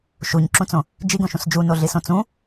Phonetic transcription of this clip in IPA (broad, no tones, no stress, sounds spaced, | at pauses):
ʃ u ɲ ǁ ũ t͡s õ | d͡ʒ i ɡ õ ʃ ũ s d͡ʒ u n o ɮ i s õ t͡s ũ